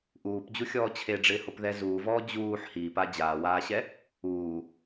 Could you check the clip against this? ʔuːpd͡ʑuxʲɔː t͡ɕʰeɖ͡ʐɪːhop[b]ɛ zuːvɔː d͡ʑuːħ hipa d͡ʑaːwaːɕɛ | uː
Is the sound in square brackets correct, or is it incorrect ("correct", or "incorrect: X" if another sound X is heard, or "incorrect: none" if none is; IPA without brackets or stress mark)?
incorrect: ð